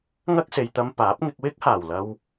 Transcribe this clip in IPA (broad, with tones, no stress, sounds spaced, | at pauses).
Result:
ŋ ɐ˥ k̚ s e˨ j t̪ ɐ˧ m p aː˨˥ p̚ ŋ ɪ˧ k̚ w ɪ˥ k̚ h aː˨˩ w l ɐ˧ w